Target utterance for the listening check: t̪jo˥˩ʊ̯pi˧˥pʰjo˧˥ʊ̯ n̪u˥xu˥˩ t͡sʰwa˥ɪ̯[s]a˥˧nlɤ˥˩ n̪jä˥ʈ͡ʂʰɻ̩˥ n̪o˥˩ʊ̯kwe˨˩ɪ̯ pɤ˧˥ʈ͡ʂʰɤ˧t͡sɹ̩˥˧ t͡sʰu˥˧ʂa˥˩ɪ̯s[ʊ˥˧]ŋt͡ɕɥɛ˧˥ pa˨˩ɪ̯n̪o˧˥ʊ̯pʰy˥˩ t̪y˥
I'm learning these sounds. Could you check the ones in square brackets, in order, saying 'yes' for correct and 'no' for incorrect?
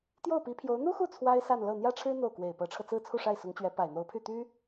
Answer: yes, no

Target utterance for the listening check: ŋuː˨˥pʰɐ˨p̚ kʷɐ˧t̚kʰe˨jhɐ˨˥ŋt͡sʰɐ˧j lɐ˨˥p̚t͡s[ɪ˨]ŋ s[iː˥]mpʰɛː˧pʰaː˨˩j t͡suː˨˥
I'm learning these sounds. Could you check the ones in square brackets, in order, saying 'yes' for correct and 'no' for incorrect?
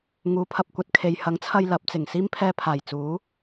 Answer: no, yes

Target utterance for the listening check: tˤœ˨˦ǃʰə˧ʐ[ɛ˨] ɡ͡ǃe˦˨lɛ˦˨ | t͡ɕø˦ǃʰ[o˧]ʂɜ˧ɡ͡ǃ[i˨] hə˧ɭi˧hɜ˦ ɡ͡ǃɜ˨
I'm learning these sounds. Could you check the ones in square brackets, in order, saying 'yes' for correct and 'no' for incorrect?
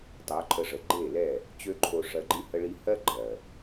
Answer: no, yes, no

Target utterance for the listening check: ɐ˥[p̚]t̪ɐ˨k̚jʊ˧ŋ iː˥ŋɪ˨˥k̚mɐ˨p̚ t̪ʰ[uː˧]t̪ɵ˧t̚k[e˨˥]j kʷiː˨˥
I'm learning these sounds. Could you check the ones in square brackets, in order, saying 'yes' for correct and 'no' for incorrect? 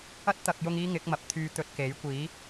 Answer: no, no, yes

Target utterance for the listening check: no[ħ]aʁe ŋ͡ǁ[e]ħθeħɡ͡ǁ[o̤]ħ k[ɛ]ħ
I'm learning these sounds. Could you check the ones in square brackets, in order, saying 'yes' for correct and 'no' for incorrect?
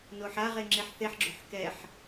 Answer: yes, yes, yes, yes

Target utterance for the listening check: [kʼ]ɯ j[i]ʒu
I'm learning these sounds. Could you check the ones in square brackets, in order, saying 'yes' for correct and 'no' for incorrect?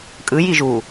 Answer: yes, yes

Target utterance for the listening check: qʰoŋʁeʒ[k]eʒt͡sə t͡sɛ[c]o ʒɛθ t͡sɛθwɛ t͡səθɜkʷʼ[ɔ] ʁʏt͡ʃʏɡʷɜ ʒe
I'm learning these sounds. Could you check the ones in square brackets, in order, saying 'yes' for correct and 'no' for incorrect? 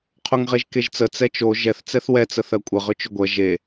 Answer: yes, no, no

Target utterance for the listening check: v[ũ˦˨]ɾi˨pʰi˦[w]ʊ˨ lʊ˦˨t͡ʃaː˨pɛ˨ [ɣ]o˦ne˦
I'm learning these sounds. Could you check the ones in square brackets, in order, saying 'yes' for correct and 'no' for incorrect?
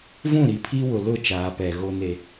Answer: yes, yes, yes

